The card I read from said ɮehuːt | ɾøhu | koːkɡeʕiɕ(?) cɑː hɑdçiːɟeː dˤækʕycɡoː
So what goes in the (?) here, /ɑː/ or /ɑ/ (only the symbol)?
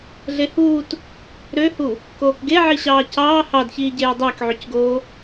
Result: ɑː